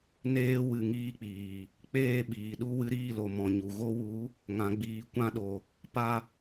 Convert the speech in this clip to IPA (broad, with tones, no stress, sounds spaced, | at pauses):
n eː˧ w ɨ˨ ŋ iː˦ k͡p iː˨ | k͡p eː˦˨ ɓ iː˨ ɗ u˦ w ɨ˧ ɾ iː˦˨ l o˨ m ɔ̃˨ ɲ u˨ ɣ o˧ w u˨˦ | ŋ ã˨ ɡ͡b iː˨ kʷ ã˧ ɗ o˨ | p a˦